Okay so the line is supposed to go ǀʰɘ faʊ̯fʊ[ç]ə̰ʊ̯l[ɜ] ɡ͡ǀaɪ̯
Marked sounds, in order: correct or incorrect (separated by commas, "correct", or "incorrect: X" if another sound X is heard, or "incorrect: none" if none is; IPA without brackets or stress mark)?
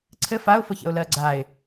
correct, correct